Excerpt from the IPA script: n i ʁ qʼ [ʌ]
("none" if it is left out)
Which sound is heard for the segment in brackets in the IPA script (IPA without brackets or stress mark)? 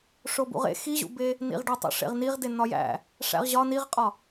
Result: ɒ